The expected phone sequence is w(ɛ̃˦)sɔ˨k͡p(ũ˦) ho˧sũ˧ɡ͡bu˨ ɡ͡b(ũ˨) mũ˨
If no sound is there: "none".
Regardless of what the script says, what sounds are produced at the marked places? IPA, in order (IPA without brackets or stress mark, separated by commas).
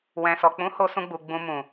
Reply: ɛ̃˨, ũ˨˦, ũ˨